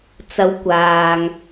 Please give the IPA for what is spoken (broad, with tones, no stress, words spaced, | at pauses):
t͡sɐ˨˧w kʷaː˨ŋ